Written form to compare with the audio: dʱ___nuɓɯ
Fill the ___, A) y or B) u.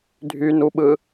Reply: A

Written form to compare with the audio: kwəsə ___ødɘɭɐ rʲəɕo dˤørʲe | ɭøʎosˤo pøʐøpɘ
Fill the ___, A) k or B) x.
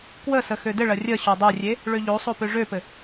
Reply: B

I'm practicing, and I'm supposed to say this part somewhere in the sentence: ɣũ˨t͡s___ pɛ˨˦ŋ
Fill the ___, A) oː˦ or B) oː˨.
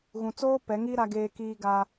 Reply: A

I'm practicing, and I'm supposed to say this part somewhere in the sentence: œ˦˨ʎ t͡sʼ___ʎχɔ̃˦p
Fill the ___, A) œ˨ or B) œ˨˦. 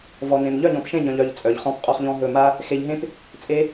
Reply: A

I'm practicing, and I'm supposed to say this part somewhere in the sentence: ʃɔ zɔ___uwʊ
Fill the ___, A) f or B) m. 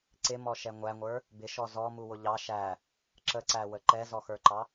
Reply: B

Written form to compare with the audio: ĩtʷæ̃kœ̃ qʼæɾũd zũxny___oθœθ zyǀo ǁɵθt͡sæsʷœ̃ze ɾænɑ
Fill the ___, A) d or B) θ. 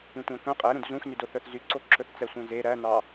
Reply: A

